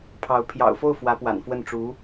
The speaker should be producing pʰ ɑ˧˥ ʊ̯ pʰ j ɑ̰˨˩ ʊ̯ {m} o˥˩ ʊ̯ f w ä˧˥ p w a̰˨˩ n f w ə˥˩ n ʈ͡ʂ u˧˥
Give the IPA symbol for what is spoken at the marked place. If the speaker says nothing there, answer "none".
f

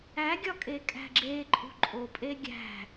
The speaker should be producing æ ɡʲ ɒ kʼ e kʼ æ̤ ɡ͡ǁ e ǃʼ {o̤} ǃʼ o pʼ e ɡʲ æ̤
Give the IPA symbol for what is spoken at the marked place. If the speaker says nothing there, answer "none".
ṳ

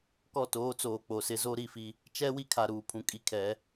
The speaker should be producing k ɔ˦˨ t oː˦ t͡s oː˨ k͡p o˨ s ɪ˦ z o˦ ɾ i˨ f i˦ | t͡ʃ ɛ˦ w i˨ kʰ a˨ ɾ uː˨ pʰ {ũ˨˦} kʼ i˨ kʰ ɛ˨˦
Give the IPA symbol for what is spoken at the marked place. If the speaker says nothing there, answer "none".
ũ˨˦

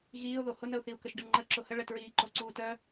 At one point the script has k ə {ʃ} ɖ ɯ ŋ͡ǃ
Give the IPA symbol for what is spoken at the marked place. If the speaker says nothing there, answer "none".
ʃ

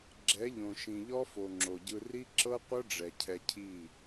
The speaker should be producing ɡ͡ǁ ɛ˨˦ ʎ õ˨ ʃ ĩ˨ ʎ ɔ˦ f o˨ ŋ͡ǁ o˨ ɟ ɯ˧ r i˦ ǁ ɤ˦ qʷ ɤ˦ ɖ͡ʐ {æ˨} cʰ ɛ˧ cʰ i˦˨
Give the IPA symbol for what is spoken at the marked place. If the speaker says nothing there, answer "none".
ɛ˨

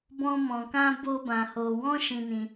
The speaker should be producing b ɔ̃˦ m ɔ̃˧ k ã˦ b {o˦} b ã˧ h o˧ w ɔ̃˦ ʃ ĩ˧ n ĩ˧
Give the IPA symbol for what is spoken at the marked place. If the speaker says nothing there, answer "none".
o˦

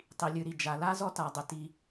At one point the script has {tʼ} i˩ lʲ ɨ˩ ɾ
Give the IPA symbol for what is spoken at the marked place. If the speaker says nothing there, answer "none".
tˤ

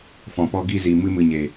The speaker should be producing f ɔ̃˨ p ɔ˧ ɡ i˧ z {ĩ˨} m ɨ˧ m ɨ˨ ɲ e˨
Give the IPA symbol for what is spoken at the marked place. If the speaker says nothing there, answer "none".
i˨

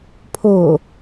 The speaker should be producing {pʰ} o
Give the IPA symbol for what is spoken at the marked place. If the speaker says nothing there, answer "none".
pʰ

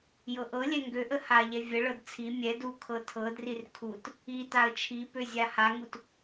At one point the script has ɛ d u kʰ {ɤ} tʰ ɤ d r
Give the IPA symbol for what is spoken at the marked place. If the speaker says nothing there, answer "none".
ɤ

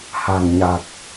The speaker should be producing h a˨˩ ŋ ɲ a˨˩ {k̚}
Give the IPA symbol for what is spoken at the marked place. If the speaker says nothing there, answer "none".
k̚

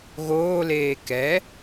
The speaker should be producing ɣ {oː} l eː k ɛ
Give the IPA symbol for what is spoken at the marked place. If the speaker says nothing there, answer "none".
oː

